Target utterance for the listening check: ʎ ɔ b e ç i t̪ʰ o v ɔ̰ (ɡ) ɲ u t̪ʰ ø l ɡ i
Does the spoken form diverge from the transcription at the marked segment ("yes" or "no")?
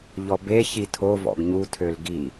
no